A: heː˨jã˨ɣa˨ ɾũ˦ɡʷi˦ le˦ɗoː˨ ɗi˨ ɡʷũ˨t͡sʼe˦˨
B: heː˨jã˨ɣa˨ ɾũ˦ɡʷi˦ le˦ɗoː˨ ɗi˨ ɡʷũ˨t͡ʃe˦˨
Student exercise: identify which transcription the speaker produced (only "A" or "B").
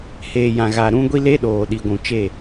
B